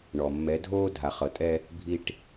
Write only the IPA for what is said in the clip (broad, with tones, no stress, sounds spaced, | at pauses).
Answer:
ɳ ɔ˨ mː ɛ˨˦ dʱ oː˦ dʱ a˨ χ ɤ˨ tʼ ɛ˧ | bʱ i˧ ʈ